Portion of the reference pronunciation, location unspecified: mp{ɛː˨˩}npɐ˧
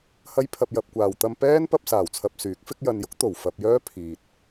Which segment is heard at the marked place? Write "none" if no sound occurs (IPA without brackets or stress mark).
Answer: ɛː˥